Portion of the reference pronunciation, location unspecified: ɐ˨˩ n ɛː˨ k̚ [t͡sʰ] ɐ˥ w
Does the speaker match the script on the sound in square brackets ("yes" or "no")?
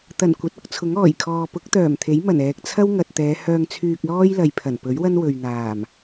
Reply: yes